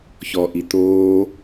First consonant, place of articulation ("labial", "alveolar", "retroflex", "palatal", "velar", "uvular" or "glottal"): palatal